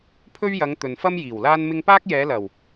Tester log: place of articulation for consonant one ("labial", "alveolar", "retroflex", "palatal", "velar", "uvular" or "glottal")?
labial